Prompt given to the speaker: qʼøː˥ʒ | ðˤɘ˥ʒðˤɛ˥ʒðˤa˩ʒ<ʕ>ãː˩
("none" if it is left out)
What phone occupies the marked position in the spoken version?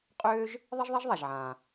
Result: ʕ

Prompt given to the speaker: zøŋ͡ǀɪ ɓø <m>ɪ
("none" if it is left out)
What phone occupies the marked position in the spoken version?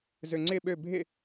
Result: bʱ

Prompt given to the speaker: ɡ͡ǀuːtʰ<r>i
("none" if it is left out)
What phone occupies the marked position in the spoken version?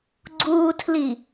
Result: l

